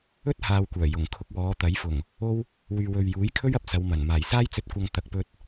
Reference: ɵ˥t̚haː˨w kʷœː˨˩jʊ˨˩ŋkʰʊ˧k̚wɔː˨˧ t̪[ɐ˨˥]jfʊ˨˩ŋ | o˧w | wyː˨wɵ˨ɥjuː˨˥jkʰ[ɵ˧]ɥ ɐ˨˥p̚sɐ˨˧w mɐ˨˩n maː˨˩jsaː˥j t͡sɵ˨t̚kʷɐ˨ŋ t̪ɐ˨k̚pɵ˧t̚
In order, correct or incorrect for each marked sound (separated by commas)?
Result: correct, incorrect